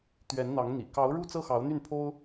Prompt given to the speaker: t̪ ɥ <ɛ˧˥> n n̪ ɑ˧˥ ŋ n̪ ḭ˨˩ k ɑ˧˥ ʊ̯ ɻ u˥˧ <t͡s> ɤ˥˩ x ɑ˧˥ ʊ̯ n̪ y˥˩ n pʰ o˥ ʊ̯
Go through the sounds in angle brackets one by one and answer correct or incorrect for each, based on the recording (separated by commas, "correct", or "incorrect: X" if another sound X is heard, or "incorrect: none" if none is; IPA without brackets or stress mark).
correct, correct